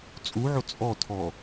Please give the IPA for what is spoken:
t͡sʼuʕo t͡sʼɔtʰɔ

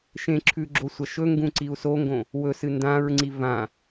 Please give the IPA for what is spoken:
ʃẽǁʰʉ ɡ͡ǁosʷɐʃɵŋɡũ ǀiu̯soŋɡõ | wɵsɨ ndãɹŋ͡ǀi vã

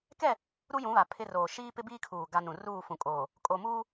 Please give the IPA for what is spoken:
kɛ˦˨ | ɾu˦jũ˨˦βa˨ pʰɪ˦roː˨ ʃiː˦pɪ˦biː˦kʰuː˨ ɡa˦nũ˨ ruː˦˨fũ˨kʼoː˨ | kʼo˨muː˦

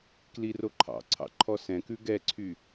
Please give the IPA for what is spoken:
kliroǃʰɑ̰ǀʰɑ̰ ǃʰɔsɛ̃kʉ ɡɛǀʰy

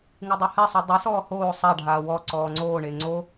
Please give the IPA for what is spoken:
ŋɯdˤuhɛsˤu dˤesɔː hoː sˤaɖʱaː wɔ ǀɔːŋ͡ǀoːɳe ŋ͡ǀo

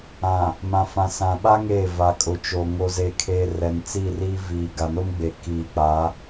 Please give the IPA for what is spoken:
ã˨ | mã˨ fã˨sã˨ɓa˦ ŋeː˦˨ va˨ kʼʊ˨t͡ʃo˨ ŋo˨ze˨kʰeː˨ rɛ˨nt͡si˦˨ri˦ viː˨ ɡa˨no˦mɡ͡beː˨ kiː˨k͡pa˨˦

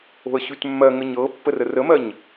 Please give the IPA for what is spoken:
o̤ə̯ɕʉtmːɜŋə ɲɤpːə rərəmɜɲ

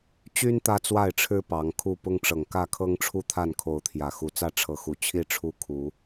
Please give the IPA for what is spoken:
t͡ɕy˦n t̪ä˦t͡swa˥˨ɪ̯ʈ͡ʂʰɻ̩˦ pɑ˨˦ŋkʰu˥˨ pʊ˦ŋʈ͡ʂɤ˨˩ŋkä˥˨kʰɤ˦ŋ ʈ͡ʂʰu˦t̪ʰa˥˨nkʰo˨˦ʊ̯t̪ʰjä˨˩ xu˨˦t͡sä˥˨ ʈ͡ʂʰɤ˨˦xu˨˩ t͡ɕʰi˥˨ ʈ͡ʂʰu˦ kʰu˨˦

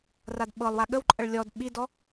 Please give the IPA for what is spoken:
radɓɤlˠwa ɠəwǃʼəɭ lʲɔd ɓidɔ

